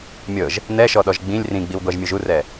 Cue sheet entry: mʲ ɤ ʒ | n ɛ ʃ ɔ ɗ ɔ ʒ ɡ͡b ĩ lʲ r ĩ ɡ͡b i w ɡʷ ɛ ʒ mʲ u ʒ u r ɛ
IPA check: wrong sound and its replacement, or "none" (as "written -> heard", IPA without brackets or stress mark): none